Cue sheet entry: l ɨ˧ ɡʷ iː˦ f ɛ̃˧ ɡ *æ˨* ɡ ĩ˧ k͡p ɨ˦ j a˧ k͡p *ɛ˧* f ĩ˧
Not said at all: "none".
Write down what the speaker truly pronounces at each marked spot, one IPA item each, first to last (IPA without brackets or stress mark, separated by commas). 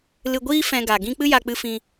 a˨, ɨ˧